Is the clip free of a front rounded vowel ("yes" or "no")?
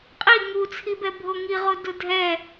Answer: yes